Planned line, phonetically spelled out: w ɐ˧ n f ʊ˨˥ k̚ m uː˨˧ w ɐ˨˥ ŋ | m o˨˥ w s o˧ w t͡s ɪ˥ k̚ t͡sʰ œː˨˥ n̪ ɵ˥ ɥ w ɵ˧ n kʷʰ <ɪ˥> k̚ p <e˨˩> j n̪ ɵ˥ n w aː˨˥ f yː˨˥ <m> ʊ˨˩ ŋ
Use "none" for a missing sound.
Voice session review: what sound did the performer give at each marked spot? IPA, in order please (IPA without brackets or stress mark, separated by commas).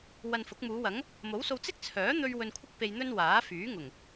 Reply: ɪ˥, e˧, ŋ